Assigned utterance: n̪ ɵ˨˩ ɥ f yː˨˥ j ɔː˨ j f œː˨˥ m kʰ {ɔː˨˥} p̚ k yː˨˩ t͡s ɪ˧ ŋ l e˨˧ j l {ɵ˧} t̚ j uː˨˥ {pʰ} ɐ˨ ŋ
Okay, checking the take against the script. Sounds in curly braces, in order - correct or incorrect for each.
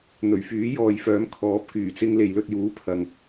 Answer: correct, correct, correct

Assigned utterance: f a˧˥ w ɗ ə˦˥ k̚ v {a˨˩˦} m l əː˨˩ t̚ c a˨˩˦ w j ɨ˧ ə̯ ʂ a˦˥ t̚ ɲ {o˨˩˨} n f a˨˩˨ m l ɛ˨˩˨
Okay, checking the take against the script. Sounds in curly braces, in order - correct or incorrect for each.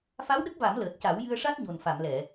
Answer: correct, incorrect: o˨˩

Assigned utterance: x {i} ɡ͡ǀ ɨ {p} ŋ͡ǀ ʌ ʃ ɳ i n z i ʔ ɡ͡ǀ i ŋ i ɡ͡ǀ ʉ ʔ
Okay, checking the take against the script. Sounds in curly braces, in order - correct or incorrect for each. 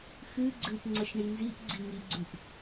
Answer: incorrect: ɨ, correct

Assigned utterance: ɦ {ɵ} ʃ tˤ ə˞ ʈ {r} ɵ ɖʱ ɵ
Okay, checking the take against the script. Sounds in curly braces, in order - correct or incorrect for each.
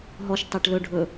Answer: incorrect: ɔ, incorrect: l

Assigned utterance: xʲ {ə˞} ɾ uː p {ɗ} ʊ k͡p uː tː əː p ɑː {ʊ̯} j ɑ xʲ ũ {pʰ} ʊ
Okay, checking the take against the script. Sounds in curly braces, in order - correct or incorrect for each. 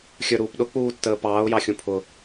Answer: correct, correct, correct, correct

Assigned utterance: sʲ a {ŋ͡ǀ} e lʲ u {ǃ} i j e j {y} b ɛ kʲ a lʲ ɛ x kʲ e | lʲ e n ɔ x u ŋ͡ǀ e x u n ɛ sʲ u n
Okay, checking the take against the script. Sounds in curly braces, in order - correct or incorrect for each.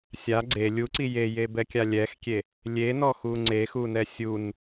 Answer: incorrect: ɡ͡ǀ, incorrect: ǀ, incorrect: e

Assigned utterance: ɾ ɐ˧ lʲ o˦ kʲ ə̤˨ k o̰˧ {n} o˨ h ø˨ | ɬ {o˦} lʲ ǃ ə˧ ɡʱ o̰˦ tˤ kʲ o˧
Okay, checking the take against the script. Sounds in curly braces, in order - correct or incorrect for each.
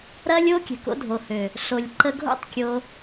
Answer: incorrect: dʱ, incorrect: o˨

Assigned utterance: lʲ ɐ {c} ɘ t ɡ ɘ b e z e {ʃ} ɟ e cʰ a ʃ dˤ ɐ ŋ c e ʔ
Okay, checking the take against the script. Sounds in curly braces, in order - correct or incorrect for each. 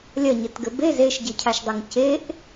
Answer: incorrect: ɲ, correct

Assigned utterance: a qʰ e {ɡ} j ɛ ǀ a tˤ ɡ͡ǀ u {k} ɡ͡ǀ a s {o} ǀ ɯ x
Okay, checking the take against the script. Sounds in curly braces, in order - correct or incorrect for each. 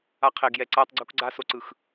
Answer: correct, correct, correct

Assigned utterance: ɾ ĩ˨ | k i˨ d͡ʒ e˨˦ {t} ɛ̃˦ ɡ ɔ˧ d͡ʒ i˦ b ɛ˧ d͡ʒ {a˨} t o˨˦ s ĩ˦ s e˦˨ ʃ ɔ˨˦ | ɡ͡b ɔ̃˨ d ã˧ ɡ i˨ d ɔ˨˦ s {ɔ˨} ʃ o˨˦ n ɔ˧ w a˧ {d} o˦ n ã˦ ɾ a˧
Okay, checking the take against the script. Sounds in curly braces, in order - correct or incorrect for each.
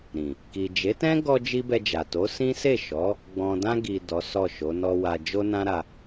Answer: correct, correct, incorrect: ɔ˦˨, incorrect: d͡ʒ

